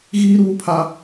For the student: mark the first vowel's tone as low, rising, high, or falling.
high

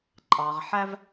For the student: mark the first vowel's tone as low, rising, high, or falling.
low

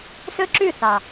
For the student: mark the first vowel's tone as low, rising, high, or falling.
high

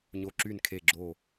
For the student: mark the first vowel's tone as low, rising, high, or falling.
low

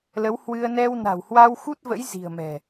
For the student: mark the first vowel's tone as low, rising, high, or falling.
rising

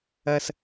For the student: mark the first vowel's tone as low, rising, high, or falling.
high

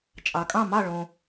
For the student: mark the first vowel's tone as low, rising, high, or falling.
low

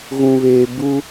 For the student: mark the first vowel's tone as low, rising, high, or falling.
low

